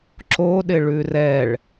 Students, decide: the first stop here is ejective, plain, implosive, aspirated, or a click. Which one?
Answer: click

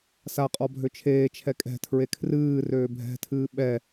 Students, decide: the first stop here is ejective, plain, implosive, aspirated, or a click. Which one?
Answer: ejective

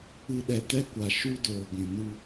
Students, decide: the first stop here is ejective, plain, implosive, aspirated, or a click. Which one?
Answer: implosive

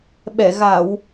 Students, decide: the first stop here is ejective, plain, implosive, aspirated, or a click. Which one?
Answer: implosive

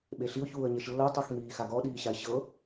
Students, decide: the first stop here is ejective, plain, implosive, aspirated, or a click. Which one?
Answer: implosive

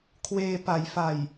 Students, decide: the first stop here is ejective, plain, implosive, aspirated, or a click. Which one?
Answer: aspirated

